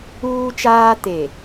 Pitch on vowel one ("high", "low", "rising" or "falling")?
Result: high